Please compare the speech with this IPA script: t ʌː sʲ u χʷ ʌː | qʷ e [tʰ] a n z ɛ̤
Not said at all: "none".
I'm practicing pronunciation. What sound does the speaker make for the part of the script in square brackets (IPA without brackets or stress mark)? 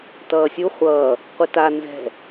t